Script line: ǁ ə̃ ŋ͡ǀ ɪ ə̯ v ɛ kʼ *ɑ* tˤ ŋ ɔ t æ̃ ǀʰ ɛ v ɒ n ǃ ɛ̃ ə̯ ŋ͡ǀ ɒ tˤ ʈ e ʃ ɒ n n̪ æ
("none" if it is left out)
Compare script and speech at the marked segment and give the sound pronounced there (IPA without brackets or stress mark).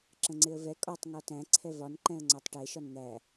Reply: ɒ